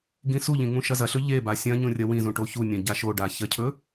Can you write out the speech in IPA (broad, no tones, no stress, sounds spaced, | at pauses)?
ɡ ĩ s u ʎ ĩ ŋ ũ ʃ ɐ z ɐ ɬ ɵ ʎ e b a sʲ ɐ̃ ɲ ũ rʲ ɐ w ĩ z ũ ʈ o ç u nʲ ɐ̃ ɟ a ʃ o ɖ a ç ɐ cʰ ɵ